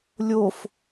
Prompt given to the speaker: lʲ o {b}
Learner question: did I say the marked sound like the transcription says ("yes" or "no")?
no